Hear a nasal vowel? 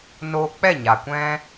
yes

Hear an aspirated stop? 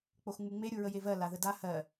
no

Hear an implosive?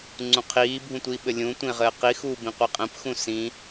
yes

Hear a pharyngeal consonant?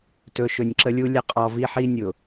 yes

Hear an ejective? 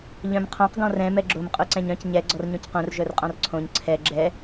yes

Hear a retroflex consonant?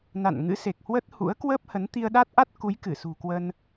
no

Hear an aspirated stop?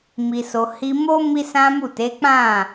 no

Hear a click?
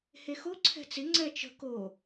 yes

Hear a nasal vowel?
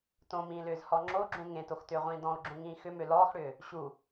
yes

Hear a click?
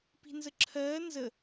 yes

